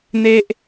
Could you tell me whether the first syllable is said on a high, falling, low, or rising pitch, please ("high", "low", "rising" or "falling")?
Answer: high